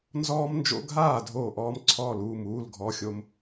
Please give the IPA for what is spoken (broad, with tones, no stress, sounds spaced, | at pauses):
n z ɔː˥ m n d͡ʒ o̰˥ ɡʱ aː˥˨ dʱ oː˥˨ ʔ ɔː˥ m ǀʰ ɔː˥˨ l uː˥˨ m uː˧˥˧ l ɡʱ ɔ˧˥˧ xʲ o˥ m